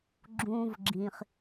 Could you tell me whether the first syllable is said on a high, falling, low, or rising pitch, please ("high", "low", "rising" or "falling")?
low